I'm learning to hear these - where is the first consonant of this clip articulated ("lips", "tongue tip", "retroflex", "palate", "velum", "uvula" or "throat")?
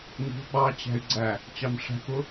velum